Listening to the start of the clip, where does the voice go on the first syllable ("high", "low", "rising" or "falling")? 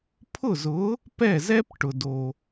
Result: falling